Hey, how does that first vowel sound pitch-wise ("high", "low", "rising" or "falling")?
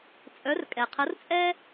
rising